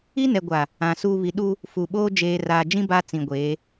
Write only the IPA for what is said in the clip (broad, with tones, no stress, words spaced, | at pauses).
i˦nɛ˨ ɡʷa˨ | ã˨ suː˦ βi˨˦ ɗu˦ | fu˨ɓoː˦ d͡ʒeː˨raː˨d͡ʒĩ˦ ba˦ t͡sĩ˨ɡʷeː˨˦